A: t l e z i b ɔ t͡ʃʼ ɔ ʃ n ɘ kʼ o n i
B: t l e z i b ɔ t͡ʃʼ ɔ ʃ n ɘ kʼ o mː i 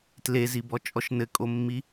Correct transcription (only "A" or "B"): B